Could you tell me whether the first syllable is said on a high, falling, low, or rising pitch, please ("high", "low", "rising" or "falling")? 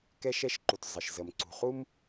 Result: high